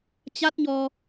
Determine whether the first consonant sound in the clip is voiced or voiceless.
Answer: voiceless